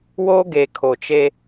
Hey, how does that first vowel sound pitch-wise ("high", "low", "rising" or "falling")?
high